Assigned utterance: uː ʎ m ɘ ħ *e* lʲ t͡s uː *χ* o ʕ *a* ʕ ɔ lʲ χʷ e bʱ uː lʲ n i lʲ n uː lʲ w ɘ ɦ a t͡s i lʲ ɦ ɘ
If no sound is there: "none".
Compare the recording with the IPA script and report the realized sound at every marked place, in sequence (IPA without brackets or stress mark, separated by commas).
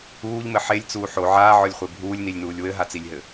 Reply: e, ħ, aː